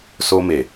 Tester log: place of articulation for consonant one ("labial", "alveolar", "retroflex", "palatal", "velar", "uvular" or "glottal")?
alveolar